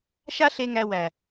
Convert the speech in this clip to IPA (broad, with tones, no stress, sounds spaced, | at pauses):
ʃ a˦ ɬ e˧ ŋ æ˧ w æ˨